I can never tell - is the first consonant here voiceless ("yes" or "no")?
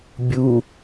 no